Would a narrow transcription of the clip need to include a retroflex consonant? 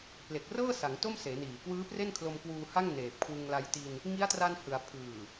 no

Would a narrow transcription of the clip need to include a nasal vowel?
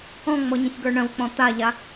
yes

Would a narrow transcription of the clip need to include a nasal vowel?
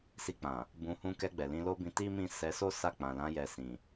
yes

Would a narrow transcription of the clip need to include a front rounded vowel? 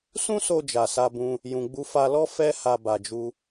no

